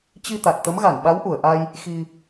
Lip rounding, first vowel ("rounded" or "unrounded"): unrounded